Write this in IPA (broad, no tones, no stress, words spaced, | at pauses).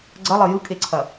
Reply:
ɡ͡ǀɐlˠɘ jɯkʼeǀʰɐ